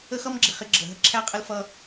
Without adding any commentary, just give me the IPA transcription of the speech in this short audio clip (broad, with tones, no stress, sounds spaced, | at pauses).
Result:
ə˦ x ʌ˦ m ɡ͡ǁ ɪ˨ χ ɪ˦ ɡ͡ǁ ə˨ ɦ ə˦ ǁʰ æ˦ qʼ ə˦ l f ʌ˦